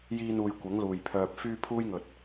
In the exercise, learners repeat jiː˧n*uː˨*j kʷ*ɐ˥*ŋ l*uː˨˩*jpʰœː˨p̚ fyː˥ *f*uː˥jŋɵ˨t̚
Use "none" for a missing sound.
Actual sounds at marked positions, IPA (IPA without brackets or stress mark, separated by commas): uː˨, ɐ˨˥, uː˨˩, pʰ